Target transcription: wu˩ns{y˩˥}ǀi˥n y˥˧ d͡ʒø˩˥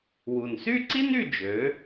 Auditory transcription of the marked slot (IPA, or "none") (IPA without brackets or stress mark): y˥˧